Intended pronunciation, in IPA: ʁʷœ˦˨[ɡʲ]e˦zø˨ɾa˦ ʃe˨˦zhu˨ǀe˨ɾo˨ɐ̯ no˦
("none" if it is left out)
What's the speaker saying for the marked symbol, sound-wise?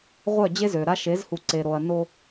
d͡ʑ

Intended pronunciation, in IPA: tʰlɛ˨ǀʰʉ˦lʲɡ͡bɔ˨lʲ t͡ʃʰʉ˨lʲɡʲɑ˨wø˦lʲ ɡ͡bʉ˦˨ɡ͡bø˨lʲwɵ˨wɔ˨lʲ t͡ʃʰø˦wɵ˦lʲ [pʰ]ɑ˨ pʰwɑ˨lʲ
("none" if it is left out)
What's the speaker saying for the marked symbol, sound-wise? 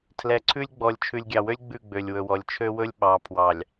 ɓ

